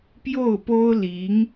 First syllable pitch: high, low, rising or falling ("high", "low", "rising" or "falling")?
falling